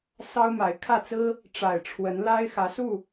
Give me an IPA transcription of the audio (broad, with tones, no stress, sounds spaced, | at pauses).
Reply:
s ɑ˦ ʊ̯ m a˨˦ ɪ̯ kʰ ä˥˨ t͡s ɹ̩˦ | ʈ͡ʂ a˨˩ ɪ̯ ʈ͡ʂʰ w ə˨˦ n l a˦ ɪ̯ x ä˨˦ s u˥˨